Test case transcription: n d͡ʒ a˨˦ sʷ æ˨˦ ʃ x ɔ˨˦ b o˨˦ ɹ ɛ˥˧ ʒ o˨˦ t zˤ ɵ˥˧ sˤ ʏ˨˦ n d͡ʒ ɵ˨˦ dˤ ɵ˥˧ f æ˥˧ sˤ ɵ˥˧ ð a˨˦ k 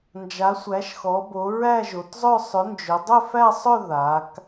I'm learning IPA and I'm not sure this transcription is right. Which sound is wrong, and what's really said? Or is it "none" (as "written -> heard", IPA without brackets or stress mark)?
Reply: ɛ˥˧ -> æ˥˧